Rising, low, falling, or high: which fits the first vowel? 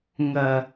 low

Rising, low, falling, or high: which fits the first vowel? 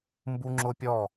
high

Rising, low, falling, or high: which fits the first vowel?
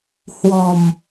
low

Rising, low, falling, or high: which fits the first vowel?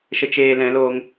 low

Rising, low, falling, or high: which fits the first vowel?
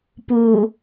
low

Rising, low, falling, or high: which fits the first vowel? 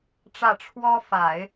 falling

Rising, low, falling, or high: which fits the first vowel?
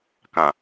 low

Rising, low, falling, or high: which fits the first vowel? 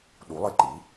rising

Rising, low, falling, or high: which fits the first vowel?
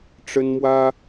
high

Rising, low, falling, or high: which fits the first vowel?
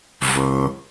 low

